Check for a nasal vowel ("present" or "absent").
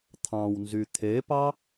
present